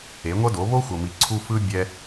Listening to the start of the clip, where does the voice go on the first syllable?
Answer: rising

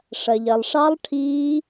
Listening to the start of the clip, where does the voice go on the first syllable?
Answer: low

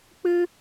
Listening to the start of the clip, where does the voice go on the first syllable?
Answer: high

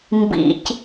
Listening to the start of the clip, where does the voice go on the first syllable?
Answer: low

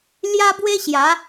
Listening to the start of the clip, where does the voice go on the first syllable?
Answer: high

